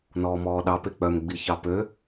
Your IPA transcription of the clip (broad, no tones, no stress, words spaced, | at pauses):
nɔːmɔːɗɑ pek͡pœm ɡ͡biçɑpø